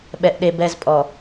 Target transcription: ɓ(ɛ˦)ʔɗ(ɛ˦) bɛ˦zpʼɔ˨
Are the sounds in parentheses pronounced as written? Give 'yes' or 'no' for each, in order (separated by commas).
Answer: yes, no